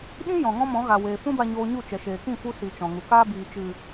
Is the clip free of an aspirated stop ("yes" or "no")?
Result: yes